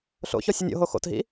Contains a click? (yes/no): no